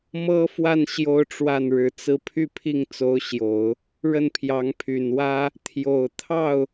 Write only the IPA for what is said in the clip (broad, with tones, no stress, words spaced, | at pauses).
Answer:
mɤ˥fwa˥˩n ɕjo˥ʊ̯ʈ͡ʂwa˥˩n ɻɻ̩˧˥t͡sɹ̩˥ pʰy˥˧pʰi˥˩ŋt͡so˧˥ʊ̯ɕjo˨˩˦ʊ̯ | ɻə˥˩npʰjɑ˧˥ŋpʰy˨˩nwä˥ | t̪ʰjo˨˩ʊ̯ t̪ʰɑ˥˩ʊ̯